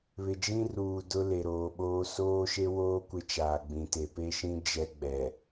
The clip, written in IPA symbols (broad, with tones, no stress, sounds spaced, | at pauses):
β ɪ˨ d͡ʒ ĩ˦ r uː˨ d ʊ˦ l e˨ ɾ oː˨ ɓ oː˦ s oː˦ ʃ e˦ w oː˦ kʷ ɪ˦ t͡ʃ aː˨ ɡ͡b ĩ˨ t e˨ p e˦ ʃ ĩ˦ d͡ʒ ɛ˦ ɡ͡b ɛ˨